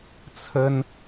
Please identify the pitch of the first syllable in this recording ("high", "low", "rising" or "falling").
high